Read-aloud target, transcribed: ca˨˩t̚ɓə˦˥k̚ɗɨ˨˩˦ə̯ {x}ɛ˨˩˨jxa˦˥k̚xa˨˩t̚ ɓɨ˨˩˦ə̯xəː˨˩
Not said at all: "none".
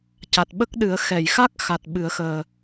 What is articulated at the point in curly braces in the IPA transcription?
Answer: x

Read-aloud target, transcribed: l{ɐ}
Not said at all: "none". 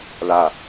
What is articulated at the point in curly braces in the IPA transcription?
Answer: a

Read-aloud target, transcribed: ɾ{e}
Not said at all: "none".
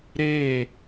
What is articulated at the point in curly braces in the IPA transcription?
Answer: e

